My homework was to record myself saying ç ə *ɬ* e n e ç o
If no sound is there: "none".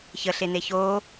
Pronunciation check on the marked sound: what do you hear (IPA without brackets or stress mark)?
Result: ɬ